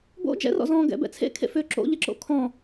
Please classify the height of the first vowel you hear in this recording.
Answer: mid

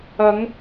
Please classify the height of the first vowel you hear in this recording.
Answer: low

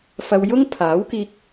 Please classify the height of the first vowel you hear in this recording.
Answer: low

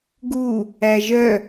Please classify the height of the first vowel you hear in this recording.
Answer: high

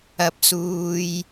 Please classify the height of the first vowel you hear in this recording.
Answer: low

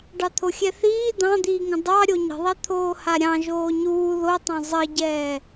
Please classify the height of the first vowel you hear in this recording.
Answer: low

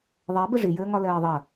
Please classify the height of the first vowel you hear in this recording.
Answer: mid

